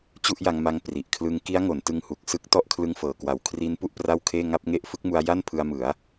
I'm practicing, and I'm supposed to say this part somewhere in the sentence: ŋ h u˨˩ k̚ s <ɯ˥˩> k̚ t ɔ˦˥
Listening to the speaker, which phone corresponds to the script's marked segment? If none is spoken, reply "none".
ɯ˦˥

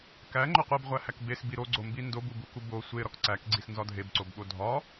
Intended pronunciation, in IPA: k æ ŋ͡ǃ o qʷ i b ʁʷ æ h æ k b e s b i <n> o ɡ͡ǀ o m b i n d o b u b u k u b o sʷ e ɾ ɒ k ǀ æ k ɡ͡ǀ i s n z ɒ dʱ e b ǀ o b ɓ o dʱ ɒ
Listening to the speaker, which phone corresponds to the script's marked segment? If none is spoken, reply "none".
ɾ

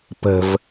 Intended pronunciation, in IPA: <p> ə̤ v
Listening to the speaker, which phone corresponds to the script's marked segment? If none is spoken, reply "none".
p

